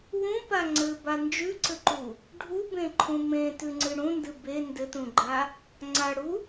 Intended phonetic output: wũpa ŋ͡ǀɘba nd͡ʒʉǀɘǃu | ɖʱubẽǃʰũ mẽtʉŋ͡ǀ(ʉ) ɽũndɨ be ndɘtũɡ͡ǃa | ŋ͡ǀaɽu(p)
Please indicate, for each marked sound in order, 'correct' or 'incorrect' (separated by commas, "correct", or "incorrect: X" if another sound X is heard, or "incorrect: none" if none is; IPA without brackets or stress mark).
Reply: incorrect: ɨ, incorrect: none